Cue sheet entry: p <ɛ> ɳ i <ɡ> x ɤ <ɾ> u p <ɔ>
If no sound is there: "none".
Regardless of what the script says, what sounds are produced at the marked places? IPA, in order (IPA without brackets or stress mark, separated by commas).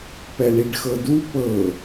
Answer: ɛ, ɖ, d, ɤ